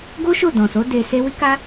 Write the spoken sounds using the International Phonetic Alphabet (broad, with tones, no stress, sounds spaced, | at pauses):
ɡ o˦ ʃ o˦˨ d ɔ̃˨ s o˨˦ d e˧ s e˦ w i˦ k a˦